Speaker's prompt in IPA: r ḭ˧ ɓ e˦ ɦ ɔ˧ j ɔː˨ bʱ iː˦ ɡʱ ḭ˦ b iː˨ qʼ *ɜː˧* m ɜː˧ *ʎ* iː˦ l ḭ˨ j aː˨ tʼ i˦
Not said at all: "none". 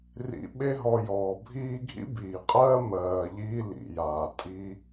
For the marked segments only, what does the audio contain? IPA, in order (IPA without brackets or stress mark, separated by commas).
ɜː˦, ʎ